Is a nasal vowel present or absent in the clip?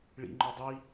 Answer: absent